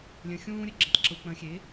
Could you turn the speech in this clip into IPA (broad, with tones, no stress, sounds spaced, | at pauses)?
lʲ ə̃˩˧˩ xʲ ũː˥ ɾʲ ə˥ ɡ͡ǁ ə̃˩˥ tˤ ǁ u˩˧˩ k͡p ə̃˨˩˦ xʲ e˩˥